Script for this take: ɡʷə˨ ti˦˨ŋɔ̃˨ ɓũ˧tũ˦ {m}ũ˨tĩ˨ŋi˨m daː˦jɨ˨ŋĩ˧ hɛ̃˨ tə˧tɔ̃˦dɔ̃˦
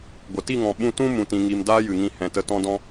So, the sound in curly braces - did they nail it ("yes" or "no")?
yes